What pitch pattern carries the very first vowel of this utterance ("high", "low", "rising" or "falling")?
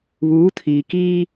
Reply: rising